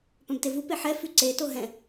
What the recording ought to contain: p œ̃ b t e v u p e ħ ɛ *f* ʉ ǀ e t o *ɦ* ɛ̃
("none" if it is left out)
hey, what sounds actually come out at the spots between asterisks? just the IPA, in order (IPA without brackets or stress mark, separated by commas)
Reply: f, ɦ